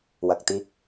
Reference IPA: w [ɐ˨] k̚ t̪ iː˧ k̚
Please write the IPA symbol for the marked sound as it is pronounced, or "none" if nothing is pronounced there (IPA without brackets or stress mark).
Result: ɐ˨